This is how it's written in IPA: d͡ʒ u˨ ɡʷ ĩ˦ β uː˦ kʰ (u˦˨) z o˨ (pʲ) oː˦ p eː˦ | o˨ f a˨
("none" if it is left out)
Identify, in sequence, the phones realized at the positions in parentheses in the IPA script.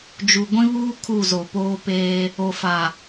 u˦˨, p

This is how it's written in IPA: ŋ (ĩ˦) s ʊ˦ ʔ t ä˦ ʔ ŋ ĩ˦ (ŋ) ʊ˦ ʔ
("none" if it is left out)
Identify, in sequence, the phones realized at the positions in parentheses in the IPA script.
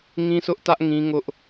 ĩ˦, ŋ

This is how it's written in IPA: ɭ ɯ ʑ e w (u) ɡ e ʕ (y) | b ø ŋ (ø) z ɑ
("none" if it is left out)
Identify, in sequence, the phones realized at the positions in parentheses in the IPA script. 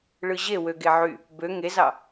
ø, y, e

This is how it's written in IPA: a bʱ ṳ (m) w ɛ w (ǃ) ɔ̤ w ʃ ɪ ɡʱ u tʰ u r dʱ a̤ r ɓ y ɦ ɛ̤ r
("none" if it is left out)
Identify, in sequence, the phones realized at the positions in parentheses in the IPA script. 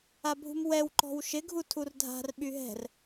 m, ǃ

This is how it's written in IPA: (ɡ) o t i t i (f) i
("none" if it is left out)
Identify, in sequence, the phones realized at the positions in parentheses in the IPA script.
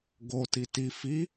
ɡ, f

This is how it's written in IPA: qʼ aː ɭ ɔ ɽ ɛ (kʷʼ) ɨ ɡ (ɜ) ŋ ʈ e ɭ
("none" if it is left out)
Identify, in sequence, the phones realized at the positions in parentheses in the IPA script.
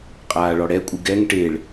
kʷʼ, ɛ

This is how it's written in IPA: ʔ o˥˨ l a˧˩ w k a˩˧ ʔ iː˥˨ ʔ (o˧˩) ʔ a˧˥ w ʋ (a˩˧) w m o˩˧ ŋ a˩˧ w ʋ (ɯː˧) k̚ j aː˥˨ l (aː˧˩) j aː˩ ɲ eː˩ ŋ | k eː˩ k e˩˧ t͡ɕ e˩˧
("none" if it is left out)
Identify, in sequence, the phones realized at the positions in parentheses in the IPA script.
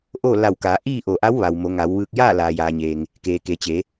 o˧˩, a˩, ɯː˧, aː˩

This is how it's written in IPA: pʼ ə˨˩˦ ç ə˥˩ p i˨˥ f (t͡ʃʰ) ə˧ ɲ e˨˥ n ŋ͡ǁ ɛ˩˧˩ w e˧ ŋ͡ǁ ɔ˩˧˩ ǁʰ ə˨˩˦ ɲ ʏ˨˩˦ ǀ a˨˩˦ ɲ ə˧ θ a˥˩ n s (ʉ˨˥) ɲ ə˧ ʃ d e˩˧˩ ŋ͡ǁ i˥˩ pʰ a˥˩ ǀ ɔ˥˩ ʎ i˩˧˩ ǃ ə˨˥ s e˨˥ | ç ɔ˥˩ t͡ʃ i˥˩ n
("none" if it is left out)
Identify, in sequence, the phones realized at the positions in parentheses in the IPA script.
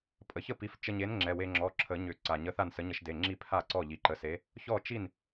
t͡ʃ, ə˨˥

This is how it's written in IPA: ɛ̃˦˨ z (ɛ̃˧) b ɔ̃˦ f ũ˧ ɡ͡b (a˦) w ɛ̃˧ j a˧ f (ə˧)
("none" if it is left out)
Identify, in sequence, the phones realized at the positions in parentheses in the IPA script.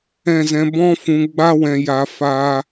ɛ̃˧, a˦, a˧

